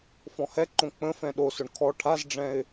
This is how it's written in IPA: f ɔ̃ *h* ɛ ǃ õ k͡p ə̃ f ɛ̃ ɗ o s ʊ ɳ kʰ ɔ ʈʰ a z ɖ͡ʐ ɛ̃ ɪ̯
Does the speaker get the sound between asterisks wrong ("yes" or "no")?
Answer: no